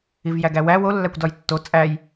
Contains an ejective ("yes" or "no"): yes